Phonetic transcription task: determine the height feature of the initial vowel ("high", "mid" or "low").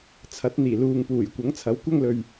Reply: low